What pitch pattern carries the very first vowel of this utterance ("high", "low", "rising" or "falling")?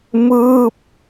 falling